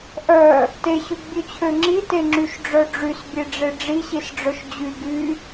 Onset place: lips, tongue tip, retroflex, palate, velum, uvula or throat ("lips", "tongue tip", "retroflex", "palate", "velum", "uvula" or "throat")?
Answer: throat